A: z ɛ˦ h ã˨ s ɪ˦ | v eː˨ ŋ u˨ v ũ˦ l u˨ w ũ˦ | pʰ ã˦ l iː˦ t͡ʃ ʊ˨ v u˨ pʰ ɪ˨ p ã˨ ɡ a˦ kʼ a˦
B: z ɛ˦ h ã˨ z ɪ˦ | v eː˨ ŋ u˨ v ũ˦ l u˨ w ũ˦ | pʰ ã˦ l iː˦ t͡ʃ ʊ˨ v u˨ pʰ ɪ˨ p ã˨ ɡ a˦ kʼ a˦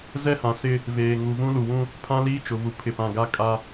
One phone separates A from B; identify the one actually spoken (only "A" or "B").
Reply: A